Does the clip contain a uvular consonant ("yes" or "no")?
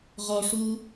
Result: yes